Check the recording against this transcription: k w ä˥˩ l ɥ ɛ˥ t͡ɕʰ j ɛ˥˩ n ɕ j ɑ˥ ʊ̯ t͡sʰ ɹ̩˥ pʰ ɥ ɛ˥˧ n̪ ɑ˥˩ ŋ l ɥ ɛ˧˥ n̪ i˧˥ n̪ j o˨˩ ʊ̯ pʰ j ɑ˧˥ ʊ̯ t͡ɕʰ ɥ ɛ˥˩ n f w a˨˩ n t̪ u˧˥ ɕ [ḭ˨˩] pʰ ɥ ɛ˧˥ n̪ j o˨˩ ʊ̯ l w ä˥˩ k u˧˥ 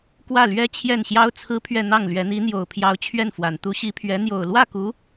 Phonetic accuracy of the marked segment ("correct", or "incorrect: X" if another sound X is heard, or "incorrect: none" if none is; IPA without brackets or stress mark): incorrect: i˧˥